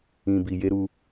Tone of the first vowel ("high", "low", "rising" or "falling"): low